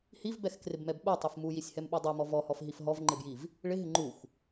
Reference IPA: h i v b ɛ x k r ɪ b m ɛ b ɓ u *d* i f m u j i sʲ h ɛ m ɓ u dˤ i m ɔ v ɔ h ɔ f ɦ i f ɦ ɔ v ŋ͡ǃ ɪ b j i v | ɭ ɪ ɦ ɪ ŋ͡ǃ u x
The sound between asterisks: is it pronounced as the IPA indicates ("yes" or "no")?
no